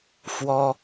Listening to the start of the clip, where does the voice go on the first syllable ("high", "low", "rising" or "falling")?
high